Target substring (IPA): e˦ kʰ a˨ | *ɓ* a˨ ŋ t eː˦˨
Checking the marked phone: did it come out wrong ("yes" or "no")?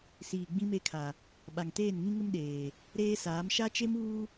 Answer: no